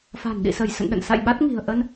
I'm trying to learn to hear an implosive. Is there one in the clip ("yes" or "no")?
yes